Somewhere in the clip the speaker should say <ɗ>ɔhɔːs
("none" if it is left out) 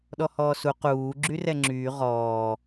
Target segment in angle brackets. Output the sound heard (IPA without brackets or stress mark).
ɗ